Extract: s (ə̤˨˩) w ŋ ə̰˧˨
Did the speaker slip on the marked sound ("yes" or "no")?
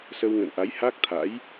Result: yes